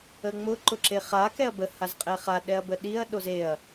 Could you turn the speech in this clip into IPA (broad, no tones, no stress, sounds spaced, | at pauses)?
ə ŋ͡m ʊ ǃ ʊ ǁ e χ a k ɛ ɐ̯ b ə h a z qʼ ɛ χ a ɗ ɛ ɐ̯ b ə ɗ i ɐ̯ ɗ o z e ɐ̯